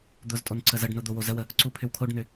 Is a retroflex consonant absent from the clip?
no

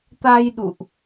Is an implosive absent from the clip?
no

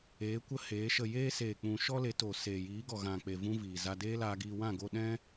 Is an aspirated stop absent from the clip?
yes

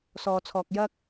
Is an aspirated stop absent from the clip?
no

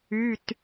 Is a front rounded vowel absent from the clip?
no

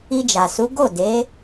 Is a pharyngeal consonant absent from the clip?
yes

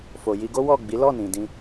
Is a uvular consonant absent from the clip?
yes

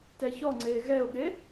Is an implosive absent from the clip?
no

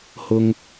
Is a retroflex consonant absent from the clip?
yes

